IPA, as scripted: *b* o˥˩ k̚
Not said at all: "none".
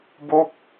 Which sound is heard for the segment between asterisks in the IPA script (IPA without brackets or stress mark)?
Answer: b